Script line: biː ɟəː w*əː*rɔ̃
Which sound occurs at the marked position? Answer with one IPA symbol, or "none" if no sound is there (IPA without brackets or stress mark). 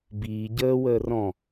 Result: əː